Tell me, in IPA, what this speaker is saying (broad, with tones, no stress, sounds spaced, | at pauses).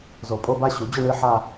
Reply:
z o˨˩˦ pʼ o˧˥˧ b a˥˧ ɕ u˨˩˦ d͡ʑ ʊ˥˧ ɳ ɨ˧˥˧ ħ a˥˧